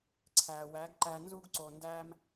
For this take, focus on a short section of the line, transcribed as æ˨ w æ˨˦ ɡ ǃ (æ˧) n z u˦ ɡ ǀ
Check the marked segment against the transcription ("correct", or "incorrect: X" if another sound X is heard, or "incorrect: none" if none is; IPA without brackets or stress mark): correct